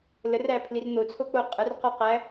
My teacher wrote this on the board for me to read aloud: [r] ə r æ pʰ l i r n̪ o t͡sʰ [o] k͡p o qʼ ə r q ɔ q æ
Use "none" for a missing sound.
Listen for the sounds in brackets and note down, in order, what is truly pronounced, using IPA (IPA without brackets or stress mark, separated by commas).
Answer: l, o